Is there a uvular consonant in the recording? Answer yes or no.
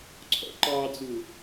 no